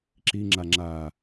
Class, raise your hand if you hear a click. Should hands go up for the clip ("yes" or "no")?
yes